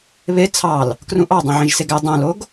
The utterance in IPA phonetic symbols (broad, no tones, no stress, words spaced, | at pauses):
βe t͡sʰɑl | krũʔɑ dˤõʕĩʒseɡæ dˤõloɡ